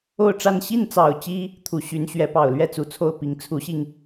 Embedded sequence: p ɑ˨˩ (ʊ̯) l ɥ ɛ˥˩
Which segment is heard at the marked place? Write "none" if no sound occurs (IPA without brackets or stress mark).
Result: ʊ̯